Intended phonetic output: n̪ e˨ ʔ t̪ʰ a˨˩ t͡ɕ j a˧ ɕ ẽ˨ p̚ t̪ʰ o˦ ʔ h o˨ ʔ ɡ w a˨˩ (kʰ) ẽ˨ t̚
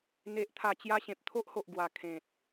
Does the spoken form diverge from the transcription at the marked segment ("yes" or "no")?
no